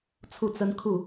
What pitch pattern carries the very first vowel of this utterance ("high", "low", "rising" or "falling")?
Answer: falling